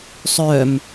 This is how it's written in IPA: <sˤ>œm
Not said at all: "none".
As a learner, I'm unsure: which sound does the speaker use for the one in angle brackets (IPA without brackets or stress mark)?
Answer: sˤ